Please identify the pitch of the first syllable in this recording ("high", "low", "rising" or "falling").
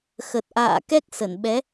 low